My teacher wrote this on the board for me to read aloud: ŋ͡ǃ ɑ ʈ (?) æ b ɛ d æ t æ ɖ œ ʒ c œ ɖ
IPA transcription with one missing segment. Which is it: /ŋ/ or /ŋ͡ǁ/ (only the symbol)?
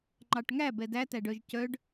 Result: ŋ